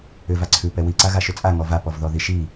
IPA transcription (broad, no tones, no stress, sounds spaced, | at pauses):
ʏ v a ǀʰ ʉ p ɛ w i ǀ a ɣ a ʃ ʏ t͡sʼ a ŋ ɔ v a p ɔ v ð ɔ ð i ʃ i